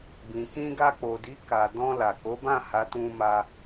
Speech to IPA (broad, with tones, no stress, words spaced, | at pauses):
bĩ˨kĩ˧ ɡa˧k͡po˨di˨˦ ka˧ dɔ̃˧la˨ko˨˦bã˦˨ ha˨˦tũ˧ ma˧